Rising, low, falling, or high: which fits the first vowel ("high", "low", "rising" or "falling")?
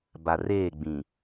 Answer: low